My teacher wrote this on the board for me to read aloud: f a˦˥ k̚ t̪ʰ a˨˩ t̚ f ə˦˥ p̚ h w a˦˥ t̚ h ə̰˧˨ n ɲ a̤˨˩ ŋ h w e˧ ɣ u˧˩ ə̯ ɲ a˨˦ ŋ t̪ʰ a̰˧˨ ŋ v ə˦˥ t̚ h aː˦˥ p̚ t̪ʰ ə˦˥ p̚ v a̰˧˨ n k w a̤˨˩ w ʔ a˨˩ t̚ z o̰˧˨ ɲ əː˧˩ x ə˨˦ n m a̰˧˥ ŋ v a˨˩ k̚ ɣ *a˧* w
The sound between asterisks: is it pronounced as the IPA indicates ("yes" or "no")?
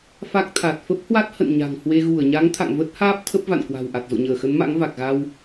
yes